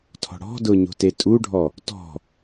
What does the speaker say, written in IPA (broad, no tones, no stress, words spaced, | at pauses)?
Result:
tʰɔ̤ɽɔ̤dʊ ɲo̤tetʼuɖʱɔ | tɔ̤